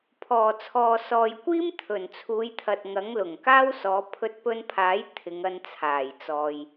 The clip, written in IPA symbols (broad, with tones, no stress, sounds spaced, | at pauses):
pʰ ɔː˨˩ t͡sʰ ɔː˨ s ɔː˨ j kʷ iː˥ m t̪ʰ ɵ˨˩ n t͡sʰ uː˨˧ j t̪ʰ ɐ˨ t̚ ŋ ɐ˨˥ ŋ l ʊ˨˩ ŋ k aː˥ w s ɔː˨˧ pʰ ɵ˧ t̚ p ɵ˧ n pʰ aː˨˥ j t̪ʰ ɪ˨˧ ŋ ɐ˧ n t͡sʰ aː˨˩ j t͡s ɔː˨ j